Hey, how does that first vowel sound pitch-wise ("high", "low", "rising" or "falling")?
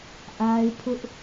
high